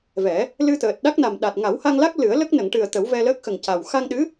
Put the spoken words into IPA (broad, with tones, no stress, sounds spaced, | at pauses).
v ɛ˨˩˦ | l ɨ˧ t̪ əː˨˩ t̚ ɗ a˦˥ k̚ n a˨˩ m ɗ a˨˩ t̚ ŋ a˨˩˦ w h a˧ ŋ l a˦˥ k̚ l ɨ˨˩˦ ə̯ l ə˦˥ k̚ n ə˨˩˨ ŋ ʈ ɨ˨˩ ə̯ t̪ ə˨˩˦ w v ɛ˧ l əː˦˥ k̚ x ə˨˩ ŋ c a˨˩ w x a˧ ŋ ɗ ɨ˧˥